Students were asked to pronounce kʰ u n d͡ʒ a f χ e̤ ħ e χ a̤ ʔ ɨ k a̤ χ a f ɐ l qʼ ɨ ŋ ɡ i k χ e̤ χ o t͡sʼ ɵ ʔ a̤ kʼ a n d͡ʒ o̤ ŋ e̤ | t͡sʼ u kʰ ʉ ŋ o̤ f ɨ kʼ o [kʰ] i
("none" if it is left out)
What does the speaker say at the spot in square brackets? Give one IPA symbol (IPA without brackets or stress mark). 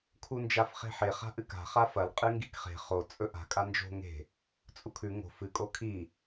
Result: kʰ